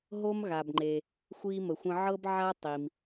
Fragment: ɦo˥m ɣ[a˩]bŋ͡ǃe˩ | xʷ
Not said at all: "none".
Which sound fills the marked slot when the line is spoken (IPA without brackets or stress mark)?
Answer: a˩